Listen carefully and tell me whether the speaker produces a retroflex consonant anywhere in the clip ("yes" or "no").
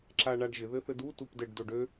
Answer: yes